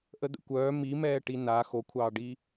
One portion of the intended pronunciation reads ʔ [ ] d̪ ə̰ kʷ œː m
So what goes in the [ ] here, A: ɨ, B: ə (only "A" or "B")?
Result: B